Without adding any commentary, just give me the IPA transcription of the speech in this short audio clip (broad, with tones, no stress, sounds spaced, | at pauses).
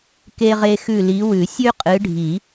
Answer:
k e˦ ʁ e˦ x ʉ˦˨ l i˨˦ w ʉ˨˩˦ sʲ ʉ˦ qʼ ɨ˨˦ ɖʱ i˨˩˦